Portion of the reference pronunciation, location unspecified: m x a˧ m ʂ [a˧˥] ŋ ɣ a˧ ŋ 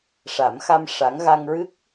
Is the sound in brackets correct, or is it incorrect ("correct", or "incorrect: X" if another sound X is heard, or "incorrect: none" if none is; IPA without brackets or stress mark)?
correct